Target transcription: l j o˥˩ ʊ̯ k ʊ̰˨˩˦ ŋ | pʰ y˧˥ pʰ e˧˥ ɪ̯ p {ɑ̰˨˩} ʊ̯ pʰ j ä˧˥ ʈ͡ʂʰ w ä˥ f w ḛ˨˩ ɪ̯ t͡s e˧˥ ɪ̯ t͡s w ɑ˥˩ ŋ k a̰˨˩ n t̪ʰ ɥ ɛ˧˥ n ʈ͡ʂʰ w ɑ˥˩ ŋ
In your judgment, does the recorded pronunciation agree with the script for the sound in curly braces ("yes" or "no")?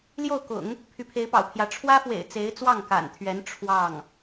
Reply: yes